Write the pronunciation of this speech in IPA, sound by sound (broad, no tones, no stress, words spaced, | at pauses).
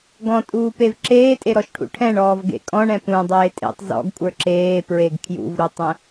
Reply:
ɡɔ̃tʼuːpev ǁeːtʼeɾɔʃʈʰṵ ʈʰɛ̃ɳɔːvɡḛ kʼɔ̃ɳɛ̃ pũdˤeː tʼḛtˤ zɔ̰ɡkʷʼə˞ ǁeːpɹeɡ kʰjṵvɾutˤə̃